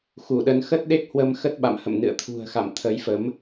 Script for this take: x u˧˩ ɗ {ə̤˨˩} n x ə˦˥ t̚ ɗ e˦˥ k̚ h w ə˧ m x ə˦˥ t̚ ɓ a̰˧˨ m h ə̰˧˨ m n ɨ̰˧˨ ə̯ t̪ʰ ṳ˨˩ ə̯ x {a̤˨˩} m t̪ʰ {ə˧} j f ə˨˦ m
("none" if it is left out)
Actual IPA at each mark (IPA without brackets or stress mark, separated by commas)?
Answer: ə˨˦, a̰˧˨, ə˨˦